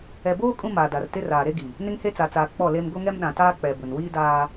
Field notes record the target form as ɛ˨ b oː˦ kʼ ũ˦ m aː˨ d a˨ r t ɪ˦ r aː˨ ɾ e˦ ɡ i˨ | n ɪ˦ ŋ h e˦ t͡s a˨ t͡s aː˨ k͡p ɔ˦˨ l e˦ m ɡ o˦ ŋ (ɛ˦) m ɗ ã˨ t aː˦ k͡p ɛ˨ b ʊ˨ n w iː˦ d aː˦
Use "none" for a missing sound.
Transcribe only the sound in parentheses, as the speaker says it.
ɛ˦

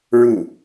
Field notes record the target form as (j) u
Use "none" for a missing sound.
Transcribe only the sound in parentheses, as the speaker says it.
ɹ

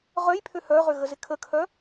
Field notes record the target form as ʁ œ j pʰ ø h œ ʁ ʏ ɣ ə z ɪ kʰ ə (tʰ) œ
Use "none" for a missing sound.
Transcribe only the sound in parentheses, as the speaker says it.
kʰ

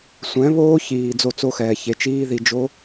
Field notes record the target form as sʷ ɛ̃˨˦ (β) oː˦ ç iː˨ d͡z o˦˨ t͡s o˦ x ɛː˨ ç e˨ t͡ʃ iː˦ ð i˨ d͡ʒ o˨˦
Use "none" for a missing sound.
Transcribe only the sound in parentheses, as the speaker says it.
β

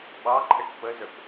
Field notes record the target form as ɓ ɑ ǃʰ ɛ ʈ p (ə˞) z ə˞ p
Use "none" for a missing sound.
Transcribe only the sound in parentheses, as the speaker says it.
ə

